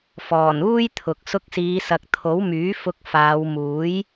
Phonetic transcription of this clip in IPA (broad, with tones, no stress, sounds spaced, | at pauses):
f ɔː˨˩ n uː˥ j t̪ʰ ʊ˨ k̚ s ʊ˧ k̚ s iː˨˧ s ɐ˨ k̚ t̪ʰ o˨˥ w m yː˨˥ f ʊ˧ k̚ f aː˨˧ w m uː˨˥ j